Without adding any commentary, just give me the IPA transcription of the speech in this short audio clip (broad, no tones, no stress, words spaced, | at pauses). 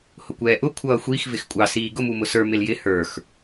hʊkʷɛːʔʊ kʷʰʌːxʷix vɪxkʷʼɑ siːɡʊ mumʊsə˞ mɪljɪ hə˞x